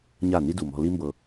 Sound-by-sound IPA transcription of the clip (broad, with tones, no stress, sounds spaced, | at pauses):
ɲ a˦˨ n i˦ d u˨ m ɔ̤˧ l i˦ m b ɤ˧